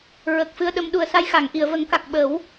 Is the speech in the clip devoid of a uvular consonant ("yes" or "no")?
yes